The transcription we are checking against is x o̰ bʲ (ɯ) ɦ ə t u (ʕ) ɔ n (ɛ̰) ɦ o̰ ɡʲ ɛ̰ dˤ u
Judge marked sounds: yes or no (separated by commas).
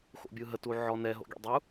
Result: yes, yes, no